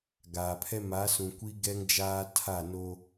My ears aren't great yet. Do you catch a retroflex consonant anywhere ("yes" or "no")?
no